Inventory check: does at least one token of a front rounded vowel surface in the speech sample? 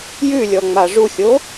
no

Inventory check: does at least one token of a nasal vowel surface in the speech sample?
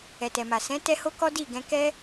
yes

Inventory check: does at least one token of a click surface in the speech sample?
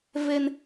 no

